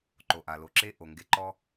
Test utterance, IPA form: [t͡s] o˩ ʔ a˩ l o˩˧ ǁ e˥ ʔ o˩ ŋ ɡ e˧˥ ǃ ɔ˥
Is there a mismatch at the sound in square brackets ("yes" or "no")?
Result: yes